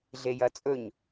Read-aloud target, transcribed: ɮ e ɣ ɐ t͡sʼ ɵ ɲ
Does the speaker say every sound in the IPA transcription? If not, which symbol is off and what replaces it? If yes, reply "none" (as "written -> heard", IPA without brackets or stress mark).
ɣ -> j